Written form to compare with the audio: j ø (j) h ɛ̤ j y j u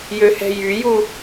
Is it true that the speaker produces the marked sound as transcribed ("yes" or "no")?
no